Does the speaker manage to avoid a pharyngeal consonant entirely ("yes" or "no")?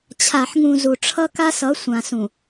no